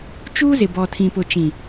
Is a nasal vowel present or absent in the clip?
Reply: present